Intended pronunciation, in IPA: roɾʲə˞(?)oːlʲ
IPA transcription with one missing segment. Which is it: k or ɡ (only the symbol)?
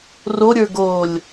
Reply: ɡ